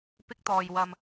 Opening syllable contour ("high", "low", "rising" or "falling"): high